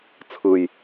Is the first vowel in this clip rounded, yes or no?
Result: no